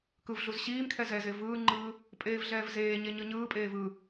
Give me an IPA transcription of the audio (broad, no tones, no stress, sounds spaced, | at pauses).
k ɯ v ɮ u z ɕ iː m kʰ ɛ z ɛ z e v ɯː ŋ͡ǃ ɯː | pʼ eː v ɮ ɛː v z eː ɲ e ɲ ɯ ɲ ɯː pʼ eː v ɯ